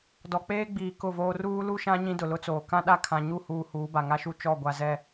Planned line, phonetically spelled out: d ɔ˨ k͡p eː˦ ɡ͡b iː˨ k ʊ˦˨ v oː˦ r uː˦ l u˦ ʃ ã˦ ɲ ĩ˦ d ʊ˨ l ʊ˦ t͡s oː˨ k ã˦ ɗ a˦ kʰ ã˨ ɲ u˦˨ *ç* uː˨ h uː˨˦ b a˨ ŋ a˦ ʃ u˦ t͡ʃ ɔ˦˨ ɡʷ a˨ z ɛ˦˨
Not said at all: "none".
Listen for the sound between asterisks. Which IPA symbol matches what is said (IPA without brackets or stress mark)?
h